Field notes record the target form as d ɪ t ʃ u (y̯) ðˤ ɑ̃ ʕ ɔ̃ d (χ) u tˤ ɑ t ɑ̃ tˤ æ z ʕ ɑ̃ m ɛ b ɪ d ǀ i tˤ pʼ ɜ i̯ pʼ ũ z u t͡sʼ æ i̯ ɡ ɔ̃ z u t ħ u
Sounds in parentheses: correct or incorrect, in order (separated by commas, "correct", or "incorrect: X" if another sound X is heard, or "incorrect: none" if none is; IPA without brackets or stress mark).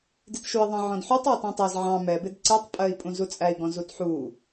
incorrect: i̯, incorrect: ħ